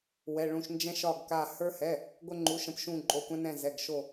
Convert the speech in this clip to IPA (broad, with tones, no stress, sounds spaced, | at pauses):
w ɛ˩˧˩ ɭ ũ˧˩ ʃ n d͡ʒ ɛ̃˧ ʃ ɒ˧˩ ɡ k a˧˩ h ə˞˧ h ɛ˩˧˩ | ɡʷ ə˧ ŋ͡ǃ u˩˧˩ ʃ ə̃˧˩ p ʃ ũ˧˩ ǃʼ o˩˧˩ kʷ ɛ̃˧ n ɛ̃˧˩ z ɛ˩˧˩ ɡ ʃ o˧˩